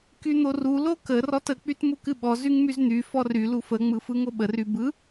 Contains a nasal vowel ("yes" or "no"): no